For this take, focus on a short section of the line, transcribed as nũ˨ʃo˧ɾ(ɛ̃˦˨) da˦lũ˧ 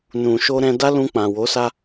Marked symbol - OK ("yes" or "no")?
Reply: no